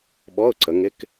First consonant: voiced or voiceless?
voiced